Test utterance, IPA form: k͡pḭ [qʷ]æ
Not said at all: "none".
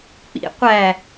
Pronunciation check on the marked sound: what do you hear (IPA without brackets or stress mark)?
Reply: qʷ